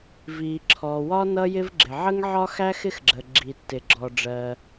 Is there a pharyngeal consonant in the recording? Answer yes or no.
yes